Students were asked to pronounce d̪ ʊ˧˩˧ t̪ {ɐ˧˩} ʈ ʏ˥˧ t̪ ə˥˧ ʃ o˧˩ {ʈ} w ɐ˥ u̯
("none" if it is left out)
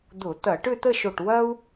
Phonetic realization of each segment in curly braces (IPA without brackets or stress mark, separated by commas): ɐ˧˩˧, ʈ